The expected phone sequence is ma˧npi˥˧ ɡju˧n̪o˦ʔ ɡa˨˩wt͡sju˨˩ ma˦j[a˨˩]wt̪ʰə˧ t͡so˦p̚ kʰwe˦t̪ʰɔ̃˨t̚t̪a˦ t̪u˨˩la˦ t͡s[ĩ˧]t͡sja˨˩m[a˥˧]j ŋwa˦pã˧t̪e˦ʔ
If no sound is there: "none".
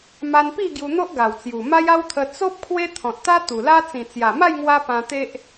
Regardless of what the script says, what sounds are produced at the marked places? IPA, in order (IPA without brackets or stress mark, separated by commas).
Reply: a˦, ĩ˨˩, a˥˧